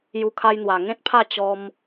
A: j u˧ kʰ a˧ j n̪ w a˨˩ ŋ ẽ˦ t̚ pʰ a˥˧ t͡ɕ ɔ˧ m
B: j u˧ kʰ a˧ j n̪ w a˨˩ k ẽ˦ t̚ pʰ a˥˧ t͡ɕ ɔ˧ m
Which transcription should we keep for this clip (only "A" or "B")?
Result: A